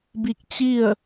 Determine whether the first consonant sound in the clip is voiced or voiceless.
voiced